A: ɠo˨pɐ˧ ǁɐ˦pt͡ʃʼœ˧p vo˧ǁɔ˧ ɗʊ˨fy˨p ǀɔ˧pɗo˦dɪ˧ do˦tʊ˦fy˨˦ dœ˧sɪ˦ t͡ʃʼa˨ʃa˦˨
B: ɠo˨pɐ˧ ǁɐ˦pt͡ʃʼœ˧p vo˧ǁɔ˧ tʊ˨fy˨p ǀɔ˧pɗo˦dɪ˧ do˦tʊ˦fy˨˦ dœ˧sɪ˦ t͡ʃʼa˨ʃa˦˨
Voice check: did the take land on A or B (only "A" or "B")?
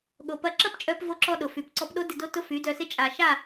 A